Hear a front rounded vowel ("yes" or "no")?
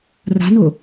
no